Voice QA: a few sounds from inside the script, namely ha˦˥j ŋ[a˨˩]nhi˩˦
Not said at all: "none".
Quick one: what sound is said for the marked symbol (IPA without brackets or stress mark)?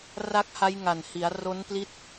a˨˩